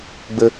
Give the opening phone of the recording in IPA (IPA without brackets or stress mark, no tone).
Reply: ɡ͡b